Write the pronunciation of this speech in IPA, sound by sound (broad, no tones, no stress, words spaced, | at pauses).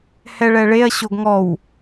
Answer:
hɛɭɛɭeɐ̯ ɕoɡŋɔw